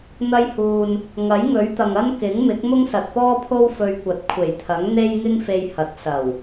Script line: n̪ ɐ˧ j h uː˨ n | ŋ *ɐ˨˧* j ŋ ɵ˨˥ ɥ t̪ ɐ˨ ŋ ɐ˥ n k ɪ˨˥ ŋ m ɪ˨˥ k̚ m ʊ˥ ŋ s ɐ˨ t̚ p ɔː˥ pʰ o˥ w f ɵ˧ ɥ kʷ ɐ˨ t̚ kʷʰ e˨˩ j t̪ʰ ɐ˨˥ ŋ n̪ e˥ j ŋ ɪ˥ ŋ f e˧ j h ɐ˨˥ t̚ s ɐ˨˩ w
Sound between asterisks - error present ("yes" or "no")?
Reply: yes